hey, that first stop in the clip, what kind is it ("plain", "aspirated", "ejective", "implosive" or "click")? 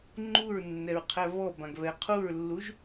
click